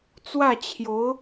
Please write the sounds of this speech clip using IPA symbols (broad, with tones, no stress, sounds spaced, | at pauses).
t͡s w ä˥˩ t͡ɕʰ j o˧˥ ʊ̯